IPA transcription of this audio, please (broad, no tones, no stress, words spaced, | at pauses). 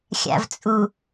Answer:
xʲa̰vt͡sʼu